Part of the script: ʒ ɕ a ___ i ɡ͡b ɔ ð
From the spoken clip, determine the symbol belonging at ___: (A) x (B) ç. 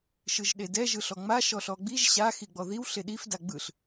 A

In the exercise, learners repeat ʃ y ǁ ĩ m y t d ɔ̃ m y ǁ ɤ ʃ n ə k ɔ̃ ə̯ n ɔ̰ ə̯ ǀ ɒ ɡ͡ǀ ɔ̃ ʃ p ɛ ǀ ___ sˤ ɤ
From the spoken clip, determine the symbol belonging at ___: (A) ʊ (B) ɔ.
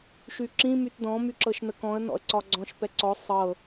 B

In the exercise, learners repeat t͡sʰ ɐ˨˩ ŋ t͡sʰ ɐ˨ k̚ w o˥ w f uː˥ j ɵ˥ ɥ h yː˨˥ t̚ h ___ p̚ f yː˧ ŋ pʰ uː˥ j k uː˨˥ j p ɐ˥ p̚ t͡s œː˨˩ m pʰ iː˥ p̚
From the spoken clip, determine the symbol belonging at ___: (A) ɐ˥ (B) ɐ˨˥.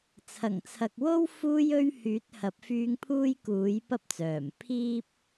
B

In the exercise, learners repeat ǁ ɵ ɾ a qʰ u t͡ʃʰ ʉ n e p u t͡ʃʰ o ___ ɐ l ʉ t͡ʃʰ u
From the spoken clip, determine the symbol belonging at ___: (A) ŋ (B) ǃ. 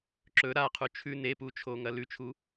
A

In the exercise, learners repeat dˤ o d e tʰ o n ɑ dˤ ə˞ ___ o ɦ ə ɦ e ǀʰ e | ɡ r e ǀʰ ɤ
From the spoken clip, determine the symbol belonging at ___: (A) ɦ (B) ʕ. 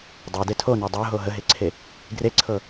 A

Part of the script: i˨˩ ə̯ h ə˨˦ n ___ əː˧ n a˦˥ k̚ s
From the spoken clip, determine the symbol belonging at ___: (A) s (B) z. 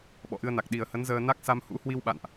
B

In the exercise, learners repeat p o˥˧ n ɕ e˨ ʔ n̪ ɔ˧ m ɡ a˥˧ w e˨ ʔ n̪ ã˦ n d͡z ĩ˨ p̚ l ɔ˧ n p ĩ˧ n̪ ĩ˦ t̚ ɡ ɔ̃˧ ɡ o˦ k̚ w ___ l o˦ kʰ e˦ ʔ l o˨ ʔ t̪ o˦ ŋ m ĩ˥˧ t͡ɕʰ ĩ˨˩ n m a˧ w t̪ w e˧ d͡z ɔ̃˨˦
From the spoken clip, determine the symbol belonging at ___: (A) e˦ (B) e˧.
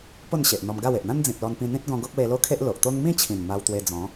B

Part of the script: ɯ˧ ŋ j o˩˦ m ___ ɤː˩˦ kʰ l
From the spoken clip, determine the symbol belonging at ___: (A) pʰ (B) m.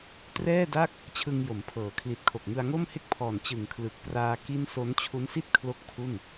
A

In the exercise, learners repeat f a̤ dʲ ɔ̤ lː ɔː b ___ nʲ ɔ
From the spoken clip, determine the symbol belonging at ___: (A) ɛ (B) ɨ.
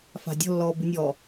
B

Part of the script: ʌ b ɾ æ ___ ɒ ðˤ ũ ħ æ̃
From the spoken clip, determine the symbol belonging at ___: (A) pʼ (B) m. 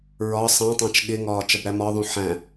B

